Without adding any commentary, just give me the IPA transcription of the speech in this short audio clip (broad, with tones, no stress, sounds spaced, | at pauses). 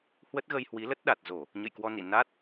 h w ə˦˥ t̚ ɣ ə˧ j h w i˨˦ l ə˦˥ t̚ ɗ a˨˩ t̚ z o˧˩˨ | ɲ ə̰˧˨ j k w ɔ˧ n ḭ˧˨ n a˦˥ t̚